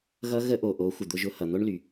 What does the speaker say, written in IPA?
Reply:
ɣ ʌ˦ ɣ ə˦ ʔ o˨ ʔ o˨˦ xʷ ə˨ d̪ ʊ˧ ʒ ʊ˧ h ʌ˨ n̪ o˦ ɳ l y˨

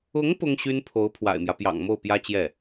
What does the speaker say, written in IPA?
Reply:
ʊ˧˥ ŋ p ʊ˥ ŋ ɕ y˥ n pʰ o˧˥ ʊ̯ pʰ w a̰˨˩ ɪ̯ m j ä˦ p j ɑ̰˨˩ ŋ m o˥˩ ʊ̯ p j ä˥ t͡ɕ j ɛ˥˩

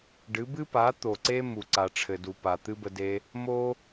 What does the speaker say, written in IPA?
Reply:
ɖ ɨ˨˦ b ɨ˦ p a˨˦ t̪ o˨ ǀ e˦ m u˨ ǀ a˨ ʈ͡ʂʰ ɘ˨ d u˨ p a˨ t̪ ɨ˦ b ə˧ d e˧ | m o˦

